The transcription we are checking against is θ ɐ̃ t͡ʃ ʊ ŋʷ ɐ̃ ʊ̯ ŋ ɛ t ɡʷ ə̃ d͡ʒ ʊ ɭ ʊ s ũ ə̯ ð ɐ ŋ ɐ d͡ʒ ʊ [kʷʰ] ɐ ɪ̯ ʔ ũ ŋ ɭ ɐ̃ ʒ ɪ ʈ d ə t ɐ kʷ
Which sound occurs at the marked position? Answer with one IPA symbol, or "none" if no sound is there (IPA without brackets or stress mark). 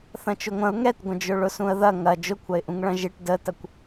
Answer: kʷʰ